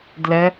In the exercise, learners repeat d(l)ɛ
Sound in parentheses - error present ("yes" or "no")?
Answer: no